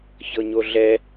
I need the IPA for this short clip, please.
ç ɤ ɲ o ɮ ɛ

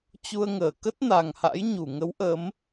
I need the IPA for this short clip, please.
t͡ɕ u˧ ə̯ ŋ əː˧˩ k ə˦˥ t̚ n a˨˩ ŋ h a̰˧˥ j ɲ u˧˩ ŋ ə˨˦ w ʔ ə˨˦ m

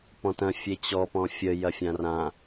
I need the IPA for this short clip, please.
p ɔ̃ t ɐ̃ fʲ e t͡ɕ ɔ p ɔ̃ fʲ ə j ɐ fʲ ã r ã

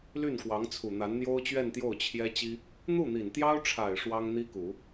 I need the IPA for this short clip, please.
l y˥˩ n k w ɑ˧˥ ŋ t͡sʰ u˨˩ n̪ a˧˥ n n̪ j o˥ ʊ̯ t͡ɕ ɥ ɛ˥˧ n t̪ j o˥˩ ʊ̯ t͡ɕʰ j ɛ˥ t͡ɕ i˥ | n̪ u˥˩ n̪ i˨˩ n t̪ j ɑ˥ ʊ̯ ʈ͡ʂʰ a˨˩ ɪ̯ ʂ w ɑ˥ ŋ n̪ i˥ k u˨˩˦

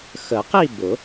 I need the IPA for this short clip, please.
x ə˨˩˦ q i˥˧ b ʊ˨˩˦

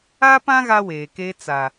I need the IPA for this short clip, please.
a˦ p ã˦ ɣ a˦ w eː˨ k eː˦ t͡s a˨

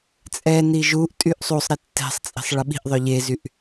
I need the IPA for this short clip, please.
t͡sʼ ɛ n i ʒ u ʔ tʼ y ʔ sˤ u sˤ ɾ e tː ɛ̤ sˤ t͡sʼ i̤ sˤ ɭ ə ɓ i̤ ʔ ðˤ œ ʎ e z y ʔ

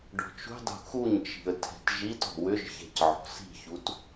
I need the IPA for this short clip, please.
ɖ ɔ̤ t͡ʃ ṳ dˤ ṳ x u ɲ t͡ʃ i̤ ə̯ tʰ ɛ̤ t ʒ i t ɔ̤ w ʏ ʒ ç ɛ̤ c ʕ ɔ̤ s i̤ ç u t

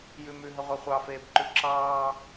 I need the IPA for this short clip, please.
j ʉ m ʉ ɦ ə ʁʷ ɛ χʷ ɑ f eː b ǃ ʉ ǁ ɑː

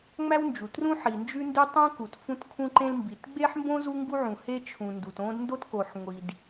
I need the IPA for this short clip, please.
ŋ͡m æ˥ w n d͡ʒ u˩ t r ũ˥ ħ i˩ n d͡ʒ ʉ˥ n d ʉ˥ tˤ ũ˥ k u˩ t f ũ˥ t kʰ ũ˥ ǃ ẽ˥ l m b i˩ t ɡ͡b e˥ ħ m b õ˥ z u˥ ŋ ɡ u˥ ʕ ũ˩ h e˥ t͡ʃʰ ũ˩ n d u˩ t õ˥ d n d o˥ t k o˩ ħ ŋʷ i˩ d

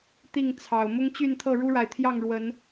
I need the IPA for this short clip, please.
t̪ i˥˨ ŋ t͡sʰ ɑ˨˩ ʊ̯ m ʊ˦ ŋ t͡ɕ y˥˨ n t̪ʰ ɤ˥˨ ɻ u˦ ɻ a˨ ɪ̯ t̪ʰ j ɑ˥˨ ŋ ɻ w ə˨˦ n

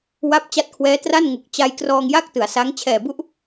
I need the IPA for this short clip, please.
w a˦˥ p̚ t͡ɕ a˦˥ t̚ kʰ w ɛː˦˥ t r a˥˩ n ŋ u˨˩ k̚ t͡ɕ a˧ j k r ɔː˧ ŋ j a˥˩ k̚ t ɯ˩˦ a̯ s a˦˥ ŋ t͡ɕʰ ɛː˨˩ b u˥˩ ʔ

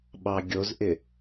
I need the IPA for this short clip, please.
ɓ ɑ ɡʲ o z ʔ ɪ

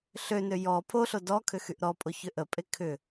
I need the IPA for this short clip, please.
ɬ ø n ø j ɔ pʰ o ɬ o d ɔ kʰ ʏ x y ʔ ɾ ɔ pʼ o ç ʏ ʔ ə pʼ e kʰ ʏ

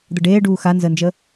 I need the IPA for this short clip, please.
d̪ ə ɖ eː ɖ uː x a n z əː n d͡ʒ əː

